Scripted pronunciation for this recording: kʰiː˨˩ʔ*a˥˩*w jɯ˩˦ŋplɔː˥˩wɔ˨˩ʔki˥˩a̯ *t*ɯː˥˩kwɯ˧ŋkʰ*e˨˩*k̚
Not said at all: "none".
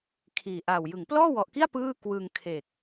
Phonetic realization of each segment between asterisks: a˨˩, p, e˨˩

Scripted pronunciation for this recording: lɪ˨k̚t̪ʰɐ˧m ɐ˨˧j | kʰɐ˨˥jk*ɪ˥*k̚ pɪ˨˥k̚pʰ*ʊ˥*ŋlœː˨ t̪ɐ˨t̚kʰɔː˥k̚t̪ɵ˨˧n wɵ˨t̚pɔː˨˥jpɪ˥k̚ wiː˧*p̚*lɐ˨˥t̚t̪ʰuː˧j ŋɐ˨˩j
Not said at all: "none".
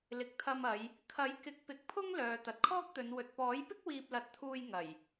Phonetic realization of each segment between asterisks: ɪ˨˥, ʊ˥, p̚

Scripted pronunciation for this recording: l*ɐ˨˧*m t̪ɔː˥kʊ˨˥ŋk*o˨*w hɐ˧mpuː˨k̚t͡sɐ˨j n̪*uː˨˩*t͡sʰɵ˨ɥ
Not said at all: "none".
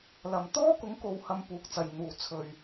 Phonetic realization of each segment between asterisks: ɐ˨, o˨, uː˨˩

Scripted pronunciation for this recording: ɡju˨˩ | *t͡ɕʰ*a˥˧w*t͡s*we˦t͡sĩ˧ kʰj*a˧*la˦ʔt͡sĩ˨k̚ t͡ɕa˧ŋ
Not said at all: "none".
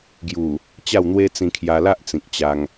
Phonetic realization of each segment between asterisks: t͡ɕ, n̪, a˧

